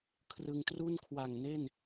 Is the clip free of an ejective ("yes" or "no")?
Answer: yes